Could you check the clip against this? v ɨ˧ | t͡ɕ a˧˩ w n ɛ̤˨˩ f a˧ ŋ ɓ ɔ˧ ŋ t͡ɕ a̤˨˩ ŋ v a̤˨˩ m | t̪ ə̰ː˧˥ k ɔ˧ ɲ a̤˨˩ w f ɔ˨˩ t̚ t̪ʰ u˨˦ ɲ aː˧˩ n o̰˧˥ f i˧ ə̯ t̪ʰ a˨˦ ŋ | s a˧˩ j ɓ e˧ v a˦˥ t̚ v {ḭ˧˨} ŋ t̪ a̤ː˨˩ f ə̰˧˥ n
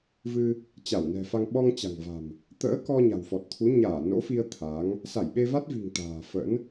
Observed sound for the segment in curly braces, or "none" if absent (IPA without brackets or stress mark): i̤˨˩